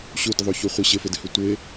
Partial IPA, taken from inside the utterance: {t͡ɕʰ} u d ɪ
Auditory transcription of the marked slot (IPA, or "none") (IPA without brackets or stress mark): ɕ